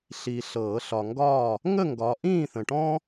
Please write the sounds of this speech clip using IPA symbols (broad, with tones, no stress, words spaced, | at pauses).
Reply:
ɬi˨ ɬɤː˨˩˦ɬɒ˨ŋɡɒː˥˨ | ŋə˥˨ŋɡɒ˨˦ ʔĩː˥˨θə̃˨ʈɔ̃˥